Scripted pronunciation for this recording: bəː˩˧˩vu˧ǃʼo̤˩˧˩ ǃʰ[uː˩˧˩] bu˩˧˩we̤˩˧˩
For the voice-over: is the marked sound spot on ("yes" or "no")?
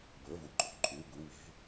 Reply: yes